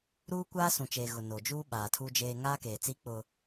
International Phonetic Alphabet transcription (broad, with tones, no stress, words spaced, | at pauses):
ɾuː˦kʷaː˦sũ˨t͡ʃeː˨ ɣʊ˨ no˨d͡ʒuː˦ ɓaː˨tʰu˦d͡ʒeː˦ ŋaː˦keː˨t͡si˦ k͡pʊ˦